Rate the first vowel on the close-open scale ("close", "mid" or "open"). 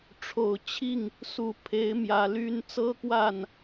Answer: mid